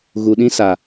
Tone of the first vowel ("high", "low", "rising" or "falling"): low